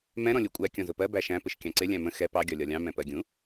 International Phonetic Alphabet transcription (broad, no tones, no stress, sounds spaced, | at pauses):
m ɛ̃ ɾ ɔ̃ lʲ u kʷʼ æ kʲ ɔ̃ z ʊ p ɜ b æ ʃ æ̃ p ɪ ʃ kʲ ɑ̃ ǀ ɪ lʲ æ̃ m ə̃ x ɛ p ɑ ɡʲ ɒ lʲ ɒ lʲ ɑ̃ m ɛ̃ p ɜ ɡʲ ũ